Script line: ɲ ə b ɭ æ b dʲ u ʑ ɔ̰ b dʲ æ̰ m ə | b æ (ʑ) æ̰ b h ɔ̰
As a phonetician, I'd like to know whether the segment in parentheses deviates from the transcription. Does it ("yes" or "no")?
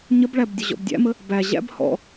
no